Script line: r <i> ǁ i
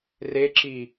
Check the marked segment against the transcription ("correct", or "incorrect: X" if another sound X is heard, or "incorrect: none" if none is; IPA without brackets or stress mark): incorrect: e